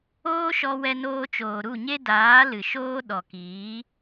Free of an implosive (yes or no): no